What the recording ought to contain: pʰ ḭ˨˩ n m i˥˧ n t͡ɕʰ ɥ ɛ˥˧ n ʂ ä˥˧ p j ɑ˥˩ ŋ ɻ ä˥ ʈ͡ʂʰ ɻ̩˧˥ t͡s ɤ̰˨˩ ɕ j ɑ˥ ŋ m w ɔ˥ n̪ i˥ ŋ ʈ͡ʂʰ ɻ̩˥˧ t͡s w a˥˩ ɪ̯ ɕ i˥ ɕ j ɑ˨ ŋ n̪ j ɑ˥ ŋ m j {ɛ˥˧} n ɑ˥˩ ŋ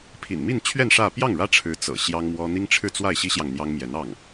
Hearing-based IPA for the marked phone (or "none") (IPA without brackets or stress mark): ɛ˧˥